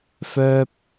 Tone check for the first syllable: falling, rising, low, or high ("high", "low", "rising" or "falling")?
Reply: high